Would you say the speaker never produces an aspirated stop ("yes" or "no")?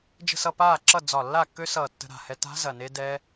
yes